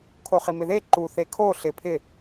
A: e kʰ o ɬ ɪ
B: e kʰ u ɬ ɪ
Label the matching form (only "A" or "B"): A